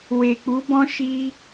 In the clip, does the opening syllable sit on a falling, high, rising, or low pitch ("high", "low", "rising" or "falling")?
low